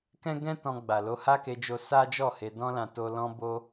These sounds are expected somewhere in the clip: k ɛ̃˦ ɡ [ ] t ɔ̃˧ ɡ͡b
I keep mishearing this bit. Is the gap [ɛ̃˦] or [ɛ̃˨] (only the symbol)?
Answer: ɛ̃˦